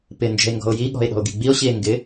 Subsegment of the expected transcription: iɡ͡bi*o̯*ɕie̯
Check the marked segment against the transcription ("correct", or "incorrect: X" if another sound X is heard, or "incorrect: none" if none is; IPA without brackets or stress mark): correct